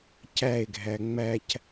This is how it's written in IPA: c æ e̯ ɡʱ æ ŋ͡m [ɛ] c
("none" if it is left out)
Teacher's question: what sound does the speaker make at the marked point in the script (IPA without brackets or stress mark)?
æ